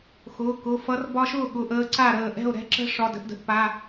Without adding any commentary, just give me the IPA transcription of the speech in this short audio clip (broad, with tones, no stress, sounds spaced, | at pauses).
x ʊː˩˧˩ k ʊ˩˧˩ f ʌ˧˥ r b ɒ˧ ʃ ʊː˥˩ ɠ ʊ˩˧˩ ʔ əː˧ ǀ a˥˩ ɾ əː˥˩ ʔ ɛ̤˥˩ o̯ ɾ ɛ̤˧˥ ǁ ə̤˧˥ ʂ ɒ˩˧˩ d ə̤˧ ʔ d ə̤˩˧˩ ʔ p a˩˧˩